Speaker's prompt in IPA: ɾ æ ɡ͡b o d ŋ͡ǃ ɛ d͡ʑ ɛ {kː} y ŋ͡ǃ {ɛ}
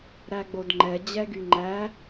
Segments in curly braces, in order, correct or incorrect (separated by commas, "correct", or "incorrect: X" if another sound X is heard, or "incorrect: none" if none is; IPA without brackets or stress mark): incorrect: ɡ, incorrect: æ